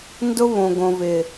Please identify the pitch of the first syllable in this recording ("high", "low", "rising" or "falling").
high